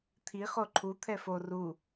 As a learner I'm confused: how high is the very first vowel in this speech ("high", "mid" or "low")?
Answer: high